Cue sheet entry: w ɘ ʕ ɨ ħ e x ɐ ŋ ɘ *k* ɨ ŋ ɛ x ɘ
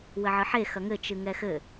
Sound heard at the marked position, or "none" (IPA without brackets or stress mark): t͡ʃ